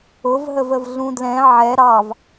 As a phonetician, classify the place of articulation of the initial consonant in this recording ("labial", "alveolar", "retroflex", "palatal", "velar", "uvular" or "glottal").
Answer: labial